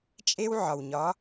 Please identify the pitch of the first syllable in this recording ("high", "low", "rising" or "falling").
high